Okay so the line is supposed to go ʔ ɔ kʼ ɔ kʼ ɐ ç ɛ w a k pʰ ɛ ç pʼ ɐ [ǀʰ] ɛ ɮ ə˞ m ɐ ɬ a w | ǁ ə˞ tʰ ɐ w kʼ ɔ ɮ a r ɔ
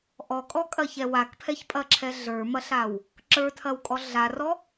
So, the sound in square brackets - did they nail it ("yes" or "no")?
no